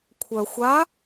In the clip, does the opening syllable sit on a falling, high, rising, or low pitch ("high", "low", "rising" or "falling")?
low